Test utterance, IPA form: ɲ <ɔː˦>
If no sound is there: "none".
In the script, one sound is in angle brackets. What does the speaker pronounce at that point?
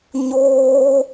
oː˦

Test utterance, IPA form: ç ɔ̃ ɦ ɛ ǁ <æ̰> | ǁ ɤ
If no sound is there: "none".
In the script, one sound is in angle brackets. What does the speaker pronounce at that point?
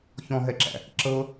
æ̰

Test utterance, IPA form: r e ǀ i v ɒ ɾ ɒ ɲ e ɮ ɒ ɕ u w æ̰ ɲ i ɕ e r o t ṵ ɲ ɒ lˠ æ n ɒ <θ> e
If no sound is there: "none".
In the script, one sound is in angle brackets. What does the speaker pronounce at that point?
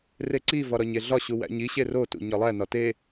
t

